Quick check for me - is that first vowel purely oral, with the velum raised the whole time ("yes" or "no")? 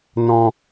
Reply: no